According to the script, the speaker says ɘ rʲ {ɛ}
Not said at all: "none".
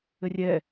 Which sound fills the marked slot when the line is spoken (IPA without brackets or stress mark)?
ɛ